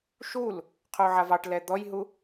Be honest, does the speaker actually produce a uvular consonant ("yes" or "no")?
yes